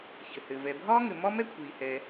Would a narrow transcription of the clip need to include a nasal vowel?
no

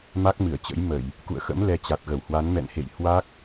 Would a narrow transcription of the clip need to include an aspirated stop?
no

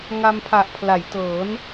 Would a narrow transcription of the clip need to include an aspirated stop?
yes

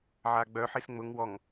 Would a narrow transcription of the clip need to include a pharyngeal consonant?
yes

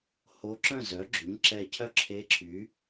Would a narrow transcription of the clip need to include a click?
yes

